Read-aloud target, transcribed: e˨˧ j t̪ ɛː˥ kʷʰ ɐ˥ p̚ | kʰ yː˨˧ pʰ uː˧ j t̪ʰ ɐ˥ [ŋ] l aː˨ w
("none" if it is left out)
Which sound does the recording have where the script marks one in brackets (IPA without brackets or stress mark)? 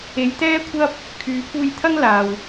ŋ